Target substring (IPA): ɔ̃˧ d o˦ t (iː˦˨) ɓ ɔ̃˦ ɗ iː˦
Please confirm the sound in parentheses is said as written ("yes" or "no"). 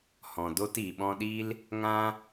no